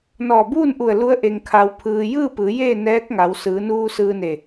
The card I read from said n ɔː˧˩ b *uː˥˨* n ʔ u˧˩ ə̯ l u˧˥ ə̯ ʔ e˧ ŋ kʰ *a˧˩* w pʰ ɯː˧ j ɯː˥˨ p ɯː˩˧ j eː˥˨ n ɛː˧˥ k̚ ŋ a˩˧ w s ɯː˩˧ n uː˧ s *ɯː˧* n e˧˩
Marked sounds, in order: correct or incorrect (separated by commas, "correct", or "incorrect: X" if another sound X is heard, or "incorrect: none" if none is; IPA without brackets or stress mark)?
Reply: correct, incorrect: a˧, correct